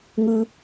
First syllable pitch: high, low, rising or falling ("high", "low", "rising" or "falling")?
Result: low